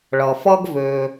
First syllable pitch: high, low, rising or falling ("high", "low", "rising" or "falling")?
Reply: low